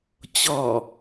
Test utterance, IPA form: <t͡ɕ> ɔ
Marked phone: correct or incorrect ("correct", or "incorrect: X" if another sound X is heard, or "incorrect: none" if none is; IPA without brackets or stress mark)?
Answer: correct